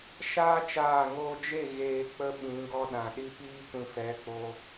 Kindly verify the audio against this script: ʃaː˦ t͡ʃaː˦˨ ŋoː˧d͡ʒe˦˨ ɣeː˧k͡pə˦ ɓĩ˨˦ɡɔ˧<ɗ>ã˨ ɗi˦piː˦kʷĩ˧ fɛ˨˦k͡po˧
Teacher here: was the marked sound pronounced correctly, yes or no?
yes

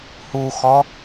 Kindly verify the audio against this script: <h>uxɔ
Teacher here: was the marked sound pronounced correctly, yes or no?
yes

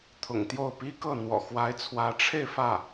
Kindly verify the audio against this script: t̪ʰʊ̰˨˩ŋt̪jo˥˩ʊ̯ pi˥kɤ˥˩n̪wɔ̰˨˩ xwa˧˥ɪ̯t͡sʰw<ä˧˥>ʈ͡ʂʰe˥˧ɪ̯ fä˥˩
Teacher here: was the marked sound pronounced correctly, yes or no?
yes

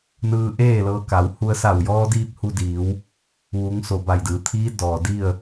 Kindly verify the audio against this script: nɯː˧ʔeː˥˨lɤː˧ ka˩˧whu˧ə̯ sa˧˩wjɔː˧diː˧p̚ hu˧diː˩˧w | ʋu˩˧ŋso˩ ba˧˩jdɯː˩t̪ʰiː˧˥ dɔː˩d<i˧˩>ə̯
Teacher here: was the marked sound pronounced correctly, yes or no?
no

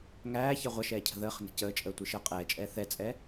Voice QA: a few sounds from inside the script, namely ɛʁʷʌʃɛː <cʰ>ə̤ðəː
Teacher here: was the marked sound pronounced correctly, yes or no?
yes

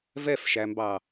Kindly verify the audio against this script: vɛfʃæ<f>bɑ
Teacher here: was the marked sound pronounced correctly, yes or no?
no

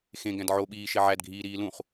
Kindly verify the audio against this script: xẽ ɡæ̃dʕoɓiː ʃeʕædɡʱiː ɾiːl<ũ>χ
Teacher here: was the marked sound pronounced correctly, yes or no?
yes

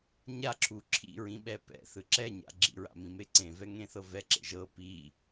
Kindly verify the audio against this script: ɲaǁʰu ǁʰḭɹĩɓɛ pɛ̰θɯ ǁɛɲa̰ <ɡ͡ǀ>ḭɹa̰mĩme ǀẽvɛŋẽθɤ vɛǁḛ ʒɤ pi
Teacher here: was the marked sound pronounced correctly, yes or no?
no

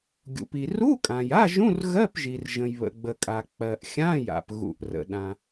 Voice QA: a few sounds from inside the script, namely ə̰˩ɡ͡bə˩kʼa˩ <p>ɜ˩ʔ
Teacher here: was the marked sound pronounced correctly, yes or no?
no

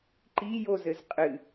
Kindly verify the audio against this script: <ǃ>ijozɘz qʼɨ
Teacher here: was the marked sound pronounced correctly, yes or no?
yes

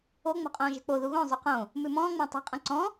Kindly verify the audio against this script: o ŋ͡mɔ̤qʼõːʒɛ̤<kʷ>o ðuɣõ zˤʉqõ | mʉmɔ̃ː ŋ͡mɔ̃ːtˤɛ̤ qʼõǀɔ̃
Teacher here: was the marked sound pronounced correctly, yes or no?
no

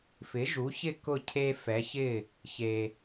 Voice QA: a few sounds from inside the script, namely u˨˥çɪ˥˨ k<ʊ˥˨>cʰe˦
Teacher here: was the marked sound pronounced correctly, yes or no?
yes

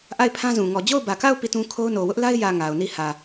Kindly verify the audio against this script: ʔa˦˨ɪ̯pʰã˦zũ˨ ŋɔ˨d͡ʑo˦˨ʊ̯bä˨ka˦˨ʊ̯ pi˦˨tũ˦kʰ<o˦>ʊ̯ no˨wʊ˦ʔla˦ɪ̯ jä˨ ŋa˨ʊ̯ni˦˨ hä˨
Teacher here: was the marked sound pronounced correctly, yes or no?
yes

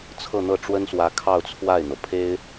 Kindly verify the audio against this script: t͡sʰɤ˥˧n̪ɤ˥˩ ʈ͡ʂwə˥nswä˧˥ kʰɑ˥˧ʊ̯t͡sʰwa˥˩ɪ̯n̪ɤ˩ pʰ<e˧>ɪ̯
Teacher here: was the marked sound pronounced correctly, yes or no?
no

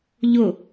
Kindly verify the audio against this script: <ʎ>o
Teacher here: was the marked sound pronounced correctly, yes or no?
yes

